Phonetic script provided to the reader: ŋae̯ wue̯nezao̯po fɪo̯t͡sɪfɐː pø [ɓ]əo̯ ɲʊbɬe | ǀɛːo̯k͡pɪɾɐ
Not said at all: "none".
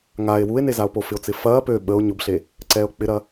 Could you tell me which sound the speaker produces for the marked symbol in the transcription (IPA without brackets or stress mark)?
ɓ